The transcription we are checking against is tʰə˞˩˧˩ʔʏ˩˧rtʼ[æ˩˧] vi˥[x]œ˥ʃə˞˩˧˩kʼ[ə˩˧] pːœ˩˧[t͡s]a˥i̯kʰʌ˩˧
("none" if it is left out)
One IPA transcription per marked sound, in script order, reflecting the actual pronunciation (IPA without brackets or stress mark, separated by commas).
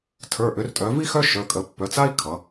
œ˩˧, x, ə˩˧, t͡s